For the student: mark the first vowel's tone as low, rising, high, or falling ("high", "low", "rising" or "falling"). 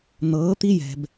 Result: rising